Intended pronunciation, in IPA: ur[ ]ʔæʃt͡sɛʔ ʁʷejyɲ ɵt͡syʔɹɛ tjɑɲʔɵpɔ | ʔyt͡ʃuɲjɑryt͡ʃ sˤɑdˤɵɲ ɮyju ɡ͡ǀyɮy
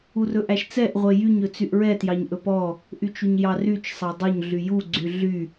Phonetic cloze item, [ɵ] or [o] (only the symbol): ɵ